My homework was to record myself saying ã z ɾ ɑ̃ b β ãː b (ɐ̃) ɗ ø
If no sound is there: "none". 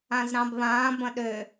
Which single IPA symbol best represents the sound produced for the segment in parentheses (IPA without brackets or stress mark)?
ɐ̃